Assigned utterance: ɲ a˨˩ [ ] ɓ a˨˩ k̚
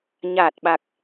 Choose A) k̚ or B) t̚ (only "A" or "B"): B